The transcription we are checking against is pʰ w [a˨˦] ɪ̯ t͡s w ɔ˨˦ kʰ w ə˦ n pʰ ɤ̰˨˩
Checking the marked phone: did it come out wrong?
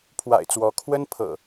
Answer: yes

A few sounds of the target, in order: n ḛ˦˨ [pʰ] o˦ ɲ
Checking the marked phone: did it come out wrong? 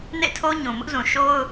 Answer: yes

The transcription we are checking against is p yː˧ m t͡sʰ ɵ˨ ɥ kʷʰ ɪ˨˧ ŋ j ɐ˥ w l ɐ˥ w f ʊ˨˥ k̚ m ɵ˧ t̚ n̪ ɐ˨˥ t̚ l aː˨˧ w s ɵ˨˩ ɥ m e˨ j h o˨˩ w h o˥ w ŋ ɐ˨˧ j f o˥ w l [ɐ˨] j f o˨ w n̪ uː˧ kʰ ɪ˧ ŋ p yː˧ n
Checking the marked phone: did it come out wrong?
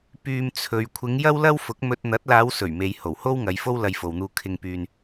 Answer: yes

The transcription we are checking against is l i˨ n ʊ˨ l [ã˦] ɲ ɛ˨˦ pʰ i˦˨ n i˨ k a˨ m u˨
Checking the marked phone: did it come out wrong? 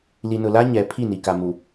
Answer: yes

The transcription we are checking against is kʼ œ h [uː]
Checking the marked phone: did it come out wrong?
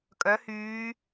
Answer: yes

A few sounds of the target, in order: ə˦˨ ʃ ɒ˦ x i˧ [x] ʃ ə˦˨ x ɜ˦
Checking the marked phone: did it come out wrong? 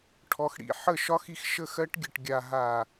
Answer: no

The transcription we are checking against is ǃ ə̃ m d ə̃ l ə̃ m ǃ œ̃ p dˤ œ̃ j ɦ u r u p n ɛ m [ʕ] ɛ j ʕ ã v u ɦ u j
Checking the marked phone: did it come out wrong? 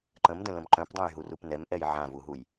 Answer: yes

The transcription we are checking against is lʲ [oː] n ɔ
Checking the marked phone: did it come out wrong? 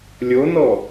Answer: yes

